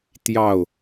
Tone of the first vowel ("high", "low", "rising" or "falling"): falling